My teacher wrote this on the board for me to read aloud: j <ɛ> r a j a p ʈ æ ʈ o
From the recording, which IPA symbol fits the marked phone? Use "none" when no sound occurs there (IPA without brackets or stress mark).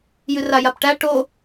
ɨ